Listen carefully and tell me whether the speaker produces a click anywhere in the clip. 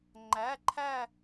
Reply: yes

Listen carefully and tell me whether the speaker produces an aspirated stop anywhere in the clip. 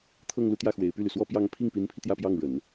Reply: yes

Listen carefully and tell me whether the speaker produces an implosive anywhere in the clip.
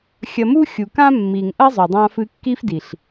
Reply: no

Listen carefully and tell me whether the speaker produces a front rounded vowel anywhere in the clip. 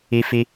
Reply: no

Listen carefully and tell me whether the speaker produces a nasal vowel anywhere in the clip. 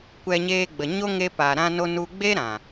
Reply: yes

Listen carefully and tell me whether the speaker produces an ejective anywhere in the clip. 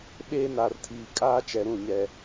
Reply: yes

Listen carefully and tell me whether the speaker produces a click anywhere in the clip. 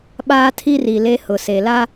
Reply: no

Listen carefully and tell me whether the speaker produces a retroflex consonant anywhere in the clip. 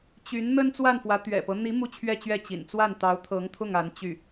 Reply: no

